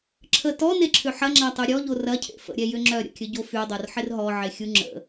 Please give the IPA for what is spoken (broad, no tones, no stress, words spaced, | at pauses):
ǁʰə tɔneǁʰʏ ħɐŋ͡ǁatˤy ɾʲɔʎo rɐcʰḛ fə̰ɾʲɛjʏ ŋ͡ǁœɾʲə̰kʲəɟo fydˤorħɪr ɦɔʕexʲu ŋ͡ǁə̰